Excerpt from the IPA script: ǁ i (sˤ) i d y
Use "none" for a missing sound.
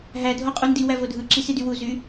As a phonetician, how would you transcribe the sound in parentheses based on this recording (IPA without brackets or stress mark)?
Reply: s